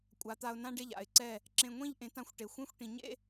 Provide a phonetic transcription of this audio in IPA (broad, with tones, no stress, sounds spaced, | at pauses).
kʷʼ a˩˥ t̪ a˧ ʊ̯ n ã˥ ɖ e˥˩ ʎ a̰˩ ɪ̯ ǀ ɛ˥˩ | ǁ ẽ˧ ŋʷ ĩ˥ ʎ ʔ ẽ˩˥ t ã˩˥ xʷ ʈ e˩ xʷ ẽ˥ xʷ ʈ ĩ˩ ɲ ḛ˥